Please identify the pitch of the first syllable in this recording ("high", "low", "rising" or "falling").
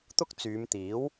high